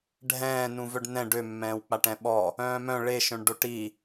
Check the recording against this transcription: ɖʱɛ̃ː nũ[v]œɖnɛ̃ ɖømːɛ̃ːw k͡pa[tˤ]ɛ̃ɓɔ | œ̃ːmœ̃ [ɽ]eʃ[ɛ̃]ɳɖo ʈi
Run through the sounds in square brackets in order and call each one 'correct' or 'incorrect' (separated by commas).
correct, incorrect, incorrect, incorrect